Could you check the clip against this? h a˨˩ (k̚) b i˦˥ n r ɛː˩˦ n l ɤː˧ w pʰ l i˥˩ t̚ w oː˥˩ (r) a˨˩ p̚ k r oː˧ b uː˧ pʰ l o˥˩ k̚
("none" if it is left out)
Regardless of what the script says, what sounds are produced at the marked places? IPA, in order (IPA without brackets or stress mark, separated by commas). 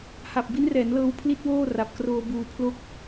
p̚, r